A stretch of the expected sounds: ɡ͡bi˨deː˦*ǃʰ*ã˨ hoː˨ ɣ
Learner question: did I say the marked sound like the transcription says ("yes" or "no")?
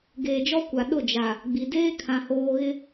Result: no